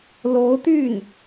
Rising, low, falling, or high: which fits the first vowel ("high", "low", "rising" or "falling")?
rising